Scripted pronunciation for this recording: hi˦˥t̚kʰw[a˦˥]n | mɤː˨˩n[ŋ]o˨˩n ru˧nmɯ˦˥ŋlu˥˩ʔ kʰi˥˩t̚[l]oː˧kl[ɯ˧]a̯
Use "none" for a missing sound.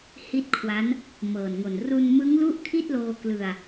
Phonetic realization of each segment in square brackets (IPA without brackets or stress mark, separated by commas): a˦˥, ŋ, l, ɯ˧